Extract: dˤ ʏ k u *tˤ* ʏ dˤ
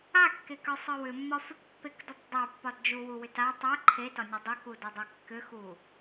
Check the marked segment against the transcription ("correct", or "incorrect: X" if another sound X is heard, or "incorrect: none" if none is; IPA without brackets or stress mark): incorrect: d